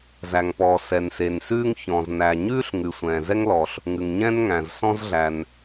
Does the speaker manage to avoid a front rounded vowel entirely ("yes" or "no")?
yes